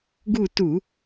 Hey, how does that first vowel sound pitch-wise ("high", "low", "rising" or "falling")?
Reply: falling